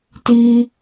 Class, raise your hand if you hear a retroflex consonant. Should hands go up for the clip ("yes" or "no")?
no